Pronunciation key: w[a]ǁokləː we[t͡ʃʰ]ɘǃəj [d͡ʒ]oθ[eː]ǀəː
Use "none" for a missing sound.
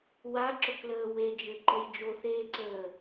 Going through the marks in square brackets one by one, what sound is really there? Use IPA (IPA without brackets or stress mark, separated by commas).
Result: a, d͡ʒ, d͡ʒ, eː